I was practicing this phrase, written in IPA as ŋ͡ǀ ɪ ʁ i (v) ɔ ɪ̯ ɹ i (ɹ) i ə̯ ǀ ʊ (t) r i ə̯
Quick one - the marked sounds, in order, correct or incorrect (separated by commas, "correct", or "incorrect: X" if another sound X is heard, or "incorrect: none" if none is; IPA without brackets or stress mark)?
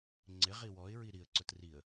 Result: incorrect: w, incorrect: ɾ, correct